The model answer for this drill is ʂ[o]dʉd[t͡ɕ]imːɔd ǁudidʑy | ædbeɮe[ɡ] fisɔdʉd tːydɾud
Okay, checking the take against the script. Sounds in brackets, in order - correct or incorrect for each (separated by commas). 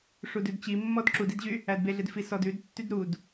incorrect, correct, incorrect